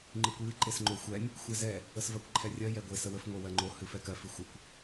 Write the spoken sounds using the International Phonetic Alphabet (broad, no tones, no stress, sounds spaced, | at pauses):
ŋ͡ǃ ɨ kʷ j ɨ ǃ e s ŋ͡ǃ o xʷ ɛ nʲ | xʷ ɛ z ɛ | ə s v ɜ kʷ ǃʰ ɛ rʲ ɜ j ɛ ɡʷ e s ə w ə f ŋʷ e w ɜ ŋ͡ǃ o h ɨ f ɛ k ɜ f ɨ xʷ ə kʷ